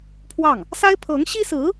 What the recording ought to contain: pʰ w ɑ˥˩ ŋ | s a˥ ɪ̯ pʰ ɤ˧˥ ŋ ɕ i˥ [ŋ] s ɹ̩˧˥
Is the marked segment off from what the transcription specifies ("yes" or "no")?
yes